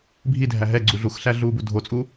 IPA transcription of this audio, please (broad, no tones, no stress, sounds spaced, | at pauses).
bʱ i dʱ æ ɦ ɛ ɡ͡ǀ u ɮ u x ɬ æ ɮ uː b u dʱ o t͡sʼ u